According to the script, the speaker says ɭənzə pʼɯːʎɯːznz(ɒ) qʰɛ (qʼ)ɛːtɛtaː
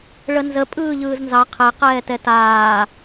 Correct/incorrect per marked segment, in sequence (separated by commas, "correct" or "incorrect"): incorrect, incorrect